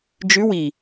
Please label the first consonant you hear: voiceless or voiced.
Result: voiced